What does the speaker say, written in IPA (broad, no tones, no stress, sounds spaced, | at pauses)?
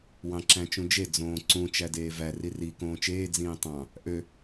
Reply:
w ɑ̃ ǁ æ̃ t͡ʃ ũ d͡ʒ e d͡z õː ǀ ũ t͡ʃ æ d eː v æ r i r i k õː t͡ʃ eː d͡z ĩː tˤ ɑ̃ | ʔ ø